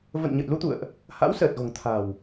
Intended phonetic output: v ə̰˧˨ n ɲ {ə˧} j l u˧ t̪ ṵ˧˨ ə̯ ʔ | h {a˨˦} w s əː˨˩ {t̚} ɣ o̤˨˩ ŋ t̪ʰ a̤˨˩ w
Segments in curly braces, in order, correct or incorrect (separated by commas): incorrect, incorrect, correct